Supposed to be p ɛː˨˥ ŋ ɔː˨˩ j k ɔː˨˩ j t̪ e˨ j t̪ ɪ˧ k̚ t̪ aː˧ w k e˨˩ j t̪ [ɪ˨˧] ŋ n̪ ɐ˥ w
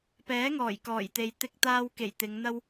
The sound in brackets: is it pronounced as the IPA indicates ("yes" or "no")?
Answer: yes